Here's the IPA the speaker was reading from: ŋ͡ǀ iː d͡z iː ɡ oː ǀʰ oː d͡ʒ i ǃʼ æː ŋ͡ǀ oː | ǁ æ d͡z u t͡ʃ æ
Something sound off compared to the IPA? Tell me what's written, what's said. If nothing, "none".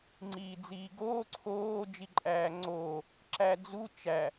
none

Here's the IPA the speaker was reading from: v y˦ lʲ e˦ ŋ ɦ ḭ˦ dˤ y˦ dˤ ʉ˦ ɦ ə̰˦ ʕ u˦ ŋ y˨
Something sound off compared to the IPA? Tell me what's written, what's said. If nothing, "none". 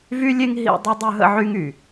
u˦ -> y˦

